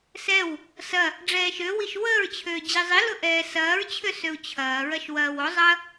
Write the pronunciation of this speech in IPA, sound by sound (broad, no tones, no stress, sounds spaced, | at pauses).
s ɛ w | s ɐ | ɖ͡ʐ ɛː ʃ ø w i ʃ w əː ɹ t͡ɕʰ øː d͡ʑ i zˤ i l ʊ ʔ ɛː s ɐː ɹ t͡ɕʰ ø s ø u̯ t͡ɕʰ ɐː ɹ ɐ ʃ w ɐː w o zˤ ɐ